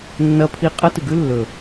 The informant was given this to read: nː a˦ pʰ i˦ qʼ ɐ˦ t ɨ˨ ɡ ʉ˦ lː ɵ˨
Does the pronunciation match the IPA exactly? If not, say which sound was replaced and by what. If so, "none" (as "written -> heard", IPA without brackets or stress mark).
a˦ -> ɐ˦